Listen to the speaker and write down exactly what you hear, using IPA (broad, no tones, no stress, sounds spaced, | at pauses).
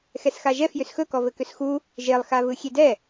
x ɛ s x a ʒ ɛ f j ʏ s x ɵ k ɔ v ɘ k ʏ s x u | ʒ e lˠ x a v ɯ xʲ e d ɛ